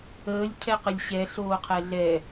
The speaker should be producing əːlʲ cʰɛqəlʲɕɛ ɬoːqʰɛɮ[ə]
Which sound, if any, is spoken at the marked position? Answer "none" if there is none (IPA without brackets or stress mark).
ɛ